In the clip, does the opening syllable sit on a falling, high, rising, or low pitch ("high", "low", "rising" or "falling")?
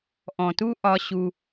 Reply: low